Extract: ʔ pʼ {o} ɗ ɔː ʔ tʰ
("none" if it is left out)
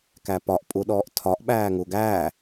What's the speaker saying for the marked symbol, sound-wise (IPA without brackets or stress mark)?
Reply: u